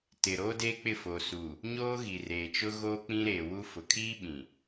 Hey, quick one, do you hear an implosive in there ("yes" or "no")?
yes